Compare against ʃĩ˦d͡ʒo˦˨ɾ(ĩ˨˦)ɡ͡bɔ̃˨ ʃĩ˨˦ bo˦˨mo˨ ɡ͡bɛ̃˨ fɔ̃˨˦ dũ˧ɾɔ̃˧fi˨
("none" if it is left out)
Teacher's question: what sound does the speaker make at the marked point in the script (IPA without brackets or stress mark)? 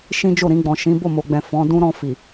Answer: ĩ˧